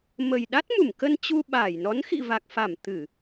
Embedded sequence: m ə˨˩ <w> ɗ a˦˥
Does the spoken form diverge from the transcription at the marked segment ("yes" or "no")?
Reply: yes